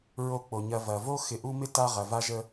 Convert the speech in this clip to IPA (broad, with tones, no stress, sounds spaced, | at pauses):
ɹ o˨ k͡p o˩ ɲ ɐ˨ v ɐ˩ v o˦ x ɪ˨ ʔ u˦ m ɪ˥ t a˦ ʁ ɐ˨ v a˦ ʒ ə˦